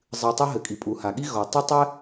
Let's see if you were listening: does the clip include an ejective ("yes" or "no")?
yes